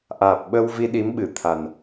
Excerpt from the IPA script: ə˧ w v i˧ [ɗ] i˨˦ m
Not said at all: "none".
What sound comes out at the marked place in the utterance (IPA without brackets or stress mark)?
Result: ɗ